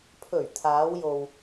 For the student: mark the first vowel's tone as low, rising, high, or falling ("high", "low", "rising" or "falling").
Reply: low